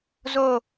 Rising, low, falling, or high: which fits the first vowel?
falling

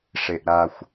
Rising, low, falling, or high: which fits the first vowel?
low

